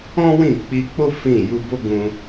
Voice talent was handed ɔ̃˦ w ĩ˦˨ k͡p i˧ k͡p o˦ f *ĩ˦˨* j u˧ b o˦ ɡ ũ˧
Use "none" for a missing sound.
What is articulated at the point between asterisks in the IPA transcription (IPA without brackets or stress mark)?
ĩ˦˨